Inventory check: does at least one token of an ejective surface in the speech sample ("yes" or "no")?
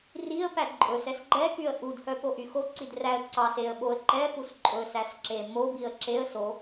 yes